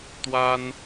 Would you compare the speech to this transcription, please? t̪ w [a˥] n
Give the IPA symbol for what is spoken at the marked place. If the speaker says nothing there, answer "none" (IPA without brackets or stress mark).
a˥